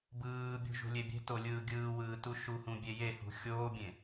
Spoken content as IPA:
b ɯː bʲ ṳ ʒ ṳ lʲ e bʲ e̤ t o lʲ ɯː ɡʲ ɯː w ɯː t u ʃ u h ũ bʲ e j e h ṳ xʲ oː bʲ ẽ

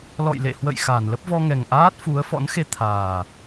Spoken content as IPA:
l ɔ̰˧˨ j l ḛ˧˨ h w ə̰˧˨ j x a˧˩ n l ə˦˥ p̚ v ɔ˧ ŋ ɛ˨˩ ŋ ʔ aː˦˥ t̚ f u˨˦ ə̯ f ɔ̰˧˥ n x e˧ t̪ʰ aː˨˩

